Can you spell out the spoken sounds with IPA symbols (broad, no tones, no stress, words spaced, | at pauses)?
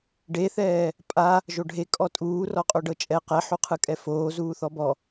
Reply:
ɖeθɛː | pʼa | ʒoɖʱekʼɔ tʼuː rɔqʼoɖɤt͡ʃʼɛ qɛħuqʰɯkʼɛ foːzuː θɔbɔ